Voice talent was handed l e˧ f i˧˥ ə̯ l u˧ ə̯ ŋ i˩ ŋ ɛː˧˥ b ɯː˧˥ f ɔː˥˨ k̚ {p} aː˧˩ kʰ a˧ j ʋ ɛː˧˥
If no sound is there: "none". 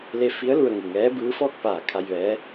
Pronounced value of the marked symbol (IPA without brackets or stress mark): p